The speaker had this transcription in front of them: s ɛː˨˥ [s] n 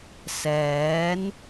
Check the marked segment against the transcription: incorrect: none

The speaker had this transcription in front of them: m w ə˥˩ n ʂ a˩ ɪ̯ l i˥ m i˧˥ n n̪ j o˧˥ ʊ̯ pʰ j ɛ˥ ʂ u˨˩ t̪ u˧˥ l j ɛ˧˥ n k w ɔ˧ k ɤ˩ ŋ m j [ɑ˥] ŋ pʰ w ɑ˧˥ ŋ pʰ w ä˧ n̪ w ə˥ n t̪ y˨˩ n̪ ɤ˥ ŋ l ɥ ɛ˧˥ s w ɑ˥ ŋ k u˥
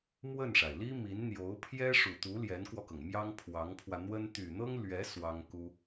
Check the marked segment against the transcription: correct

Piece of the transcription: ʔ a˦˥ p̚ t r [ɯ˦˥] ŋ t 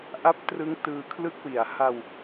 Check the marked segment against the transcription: correct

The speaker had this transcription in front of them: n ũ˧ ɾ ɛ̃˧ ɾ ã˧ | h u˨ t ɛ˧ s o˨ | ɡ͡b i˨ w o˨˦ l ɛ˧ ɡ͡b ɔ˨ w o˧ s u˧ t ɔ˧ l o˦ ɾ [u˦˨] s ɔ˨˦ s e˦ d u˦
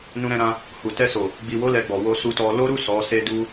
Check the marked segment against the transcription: correct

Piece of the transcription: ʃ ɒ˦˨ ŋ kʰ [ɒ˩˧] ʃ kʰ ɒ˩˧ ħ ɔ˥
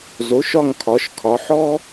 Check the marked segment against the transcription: correct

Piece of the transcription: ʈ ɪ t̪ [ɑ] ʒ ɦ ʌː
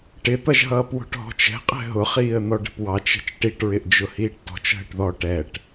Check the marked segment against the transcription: incorrect: ʌ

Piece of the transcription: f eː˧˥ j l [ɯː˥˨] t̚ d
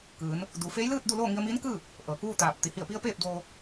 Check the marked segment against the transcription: correct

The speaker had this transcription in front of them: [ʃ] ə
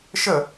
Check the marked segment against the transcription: correct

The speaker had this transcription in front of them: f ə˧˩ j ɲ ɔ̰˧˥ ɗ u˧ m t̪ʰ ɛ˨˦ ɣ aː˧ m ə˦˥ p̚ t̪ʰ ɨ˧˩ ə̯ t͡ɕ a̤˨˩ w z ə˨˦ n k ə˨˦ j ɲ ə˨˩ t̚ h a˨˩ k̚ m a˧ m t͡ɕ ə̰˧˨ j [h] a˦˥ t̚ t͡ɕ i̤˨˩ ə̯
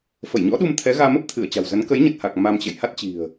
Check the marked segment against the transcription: correct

